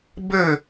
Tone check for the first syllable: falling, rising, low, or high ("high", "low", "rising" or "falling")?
falling